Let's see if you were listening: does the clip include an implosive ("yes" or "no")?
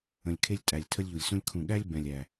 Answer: yes